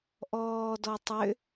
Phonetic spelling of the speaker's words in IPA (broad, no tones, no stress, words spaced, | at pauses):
ʔɔːdɔ tˤʏ